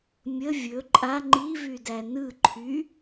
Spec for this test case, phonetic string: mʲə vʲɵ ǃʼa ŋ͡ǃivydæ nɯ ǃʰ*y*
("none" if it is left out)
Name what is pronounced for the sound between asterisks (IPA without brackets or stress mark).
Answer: y